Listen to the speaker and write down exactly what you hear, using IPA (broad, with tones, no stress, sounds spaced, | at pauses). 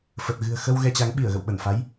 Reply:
f ə˨˩ t̚ ɣ ɨ̤˨˩ ə̯ x ə˧ w ɣ ɛ˧ t͡ɕ a˨˦ ŋ ɓ i˧˩ ə̯ ɣ ə̰˧˨ w ɓ ə˧˩ n f a˨˦ j